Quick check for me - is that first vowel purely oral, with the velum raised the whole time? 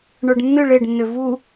yes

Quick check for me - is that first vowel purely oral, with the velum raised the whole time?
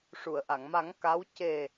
yes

